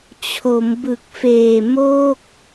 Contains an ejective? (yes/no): no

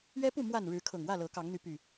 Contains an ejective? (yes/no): no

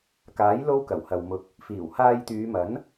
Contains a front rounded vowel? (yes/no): yes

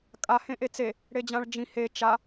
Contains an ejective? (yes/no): yes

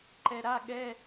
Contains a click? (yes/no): yes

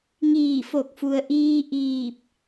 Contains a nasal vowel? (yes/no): no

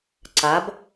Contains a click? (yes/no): yes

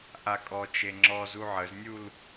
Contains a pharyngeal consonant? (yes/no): yes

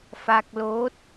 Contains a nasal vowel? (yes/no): no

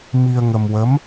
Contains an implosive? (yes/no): no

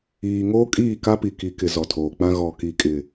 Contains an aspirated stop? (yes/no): yes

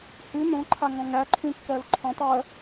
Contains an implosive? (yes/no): no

